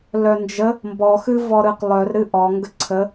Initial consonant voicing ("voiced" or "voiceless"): voiced